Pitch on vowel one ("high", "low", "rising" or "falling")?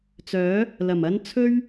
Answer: rising